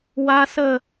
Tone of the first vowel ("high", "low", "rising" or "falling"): high